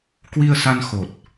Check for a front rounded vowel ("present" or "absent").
absent